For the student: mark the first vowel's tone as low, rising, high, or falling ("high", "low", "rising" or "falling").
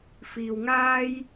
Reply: low